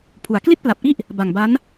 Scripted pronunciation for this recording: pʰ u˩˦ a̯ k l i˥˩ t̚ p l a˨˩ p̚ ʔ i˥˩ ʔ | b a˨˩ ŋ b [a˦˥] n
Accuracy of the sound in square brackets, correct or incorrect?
correct